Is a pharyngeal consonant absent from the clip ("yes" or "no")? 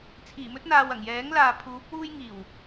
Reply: yes